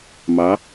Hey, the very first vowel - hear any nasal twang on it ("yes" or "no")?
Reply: no